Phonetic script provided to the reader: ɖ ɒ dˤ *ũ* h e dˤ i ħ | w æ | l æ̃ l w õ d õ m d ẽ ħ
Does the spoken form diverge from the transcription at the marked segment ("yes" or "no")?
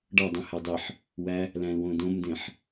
no